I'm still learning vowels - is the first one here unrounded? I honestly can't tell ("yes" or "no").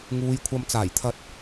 no